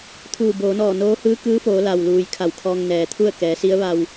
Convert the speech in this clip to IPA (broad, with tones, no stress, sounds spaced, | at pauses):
t̪ʰ uː˧˩ b oː˩˧ n ɔː˧˩ n oː˧˥ h ɯː˧˥ k ɯː˧˥ f oː˩˧ l a˩ w l uː˩ j kʰ a˧˩ w kʰ ɔː˧ ŋ n ɛː˩ t̪ʰ u˥˨ ə̯ k ɛː˩˧ s i˧˥ ə̯ ʋ a˧ w